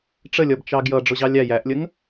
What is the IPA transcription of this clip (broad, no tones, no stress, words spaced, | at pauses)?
ʈ͡ʂəlʲʌb t͡ʃɑɡjʌ ɖ͡ʐʊʑɑlʲæ jæʔlʲəŋ